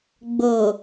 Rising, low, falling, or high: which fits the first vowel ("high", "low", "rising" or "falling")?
low